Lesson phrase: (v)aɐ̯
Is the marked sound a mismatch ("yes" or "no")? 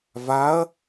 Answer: no